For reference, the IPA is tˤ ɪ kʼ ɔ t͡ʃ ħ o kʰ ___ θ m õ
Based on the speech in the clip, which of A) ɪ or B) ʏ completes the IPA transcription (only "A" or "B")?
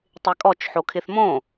A